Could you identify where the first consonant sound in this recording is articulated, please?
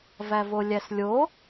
labial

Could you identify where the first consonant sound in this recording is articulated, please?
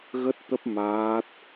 velar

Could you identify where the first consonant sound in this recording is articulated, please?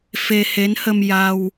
labial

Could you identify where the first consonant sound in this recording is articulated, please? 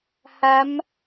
glottal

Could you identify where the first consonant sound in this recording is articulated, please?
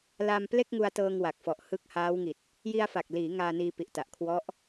alveolar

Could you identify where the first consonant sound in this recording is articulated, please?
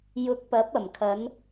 palatal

